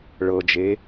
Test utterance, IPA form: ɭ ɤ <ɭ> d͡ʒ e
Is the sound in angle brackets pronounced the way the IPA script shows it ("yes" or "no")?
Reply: no